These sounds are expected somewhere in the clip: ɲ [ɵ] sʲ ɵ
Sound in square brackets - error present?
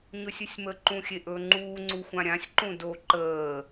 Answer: no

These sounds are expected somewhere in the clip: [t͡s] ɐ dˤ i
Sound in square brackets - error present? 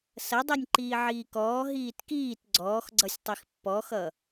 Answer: yes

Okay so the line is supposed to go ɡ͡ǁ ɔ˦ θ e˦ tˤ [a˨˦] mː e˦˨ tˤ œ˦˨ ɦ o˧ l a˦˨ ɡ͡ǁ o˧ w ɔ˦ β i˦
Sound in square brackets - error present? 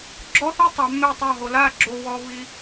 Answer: no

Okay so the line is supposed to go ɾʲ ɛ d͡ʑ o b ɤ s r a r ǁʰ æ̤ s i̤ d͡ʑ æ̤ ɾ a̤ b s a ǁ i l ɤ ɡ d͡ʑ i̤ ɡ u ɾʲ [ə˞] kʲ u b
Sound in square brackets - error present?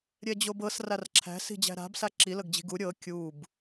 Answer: yes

